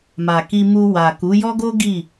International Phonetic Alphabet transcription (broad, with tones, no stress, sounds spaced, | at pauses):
m a˨ k i˧ m u˧ w a˨ k u˨˦ j ɔ˦ ɡ o˦ ɡ i˦˨